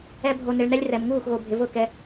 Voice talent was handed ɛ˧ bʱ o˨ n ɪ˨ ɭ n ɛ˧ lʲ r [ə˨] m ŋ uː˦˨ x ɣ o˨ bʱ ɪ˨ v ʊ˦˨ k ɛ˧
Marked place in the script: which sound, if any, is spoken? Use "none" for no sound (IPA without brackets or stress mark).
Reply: ɛ˨